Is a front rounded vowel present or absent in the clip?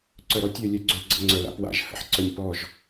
present